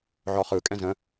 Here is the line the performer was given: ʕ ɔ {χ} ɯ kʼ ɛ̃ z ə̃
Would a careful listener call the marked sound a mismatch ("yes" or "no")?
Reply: no